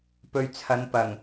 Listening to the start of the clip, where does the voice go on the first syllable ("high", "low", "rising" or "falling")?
low